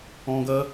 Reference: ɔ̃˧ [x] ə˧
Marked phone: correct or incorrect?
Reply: incorrect